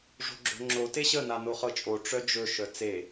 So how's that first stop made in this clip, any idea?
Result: click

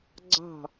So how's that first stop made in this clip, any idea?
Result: click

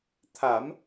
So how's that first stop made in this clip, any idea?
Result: aspirated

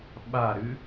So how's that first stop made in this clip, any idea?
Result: implosive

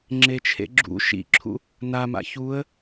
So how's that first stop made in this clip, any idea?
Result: click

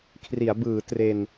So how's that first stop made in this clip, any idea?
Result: aspirated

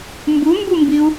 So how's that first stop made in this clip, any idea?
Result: plain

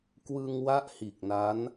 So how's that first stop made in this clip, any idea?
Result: plain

